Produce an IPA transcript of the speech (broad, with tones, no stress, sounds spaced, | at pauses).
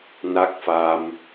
n a˦˥ k̚ f a˧ m